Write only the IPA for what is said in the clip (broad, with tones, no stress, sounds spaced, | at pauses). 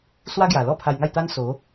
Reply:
s w a˦ ɡ j a˨˩ l ɔ˥˧ pʰ a˧ j ŋ a˥˧ j t̪ a˦ n s o˨˦